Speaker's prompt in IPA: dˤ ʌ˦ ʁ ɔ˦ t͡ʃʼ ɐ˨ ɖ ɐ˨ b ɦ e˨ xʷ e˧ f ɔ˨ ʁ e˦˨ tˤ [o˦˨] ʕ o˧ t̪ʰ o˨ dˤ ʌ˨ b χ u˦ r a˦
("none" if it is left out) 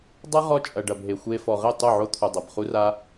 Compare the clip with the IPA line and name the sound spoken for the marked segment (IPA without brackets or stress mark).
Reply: o˦˨